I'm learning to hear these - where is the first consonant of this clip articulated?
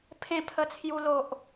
lips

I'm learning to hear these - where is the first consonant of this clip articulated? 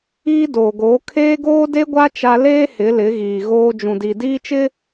tongue tip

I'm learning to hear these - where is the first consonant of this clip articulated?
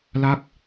tongue tip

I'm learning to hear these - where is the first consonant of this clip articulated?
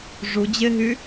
retroflex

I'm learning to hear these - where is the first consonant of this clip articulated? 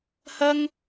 throat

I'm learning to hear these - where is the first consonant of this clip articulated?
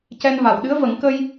palate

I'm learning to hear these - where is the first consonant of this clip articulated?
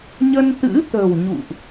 palate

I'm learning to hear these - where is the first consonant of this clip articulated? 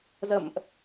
tongue tip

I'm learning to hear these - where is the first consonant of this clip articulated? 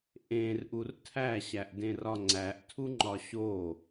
throat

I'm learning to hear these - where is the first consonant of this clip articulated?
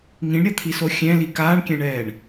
velum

